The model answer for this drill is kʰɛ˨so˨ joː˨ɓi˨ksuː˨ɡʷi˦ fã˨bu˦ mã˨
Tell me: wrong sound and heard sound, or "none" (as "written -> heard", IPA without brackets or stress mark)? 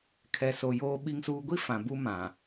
k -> ŋ